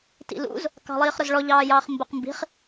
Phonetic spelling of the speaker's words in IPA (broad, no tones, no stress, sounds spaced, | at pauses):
t ḭ l ṵ z | k ɑ̤ lˠ iː χ ɾ ʊ z ɭ ɔ ʎ ɑː j ɑː χ m b ʊ q m b i̤ χ